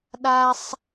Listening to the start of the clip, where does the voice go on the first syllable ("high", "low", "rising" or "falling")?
high